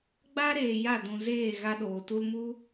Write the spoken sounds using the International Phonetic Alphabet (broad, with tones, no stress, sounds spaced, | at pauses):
ɡ͡b a˦ ɾ eː˨ j a˦˨ d ũ˨ z eː˦˨ ɣ a˦ ɗ oː˨ t u˧ l m u˦